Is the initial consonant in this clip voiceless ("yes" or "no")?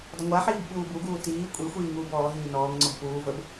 no